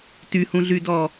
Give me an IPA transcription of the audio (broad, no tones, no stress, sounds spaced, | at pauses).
t y h ũ ɮ y d ɔ